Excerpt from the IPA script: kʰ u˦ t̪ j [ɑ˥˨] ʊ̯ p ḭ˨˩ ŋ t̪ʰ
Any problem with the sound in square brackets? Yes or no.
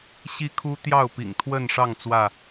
no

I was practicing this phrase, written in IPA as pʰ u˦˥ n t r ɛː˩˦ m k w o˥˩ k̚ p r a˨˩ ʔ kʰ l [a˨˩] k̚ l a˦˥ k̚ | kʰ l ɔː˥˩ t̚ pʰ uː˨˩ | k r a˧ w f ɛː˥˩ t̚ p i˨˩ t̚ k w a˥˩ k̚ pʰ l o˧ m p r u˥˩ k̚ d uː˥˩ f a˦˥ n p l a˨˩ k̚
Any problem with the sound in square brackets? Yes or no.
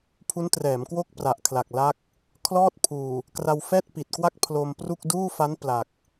no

